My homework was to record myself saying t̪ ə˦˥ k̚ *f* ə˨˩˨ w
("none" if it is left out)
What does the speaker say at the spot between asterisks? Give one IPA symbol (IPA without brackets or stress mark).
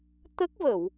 v